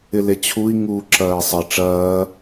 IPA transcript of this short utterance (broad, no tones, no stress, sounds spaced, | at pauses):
ɪ l e t͡ɕʰ u i̯ ŋ uː ǁ ɐː i̯ sˤ ɪ ʈ͡ʂ ɐː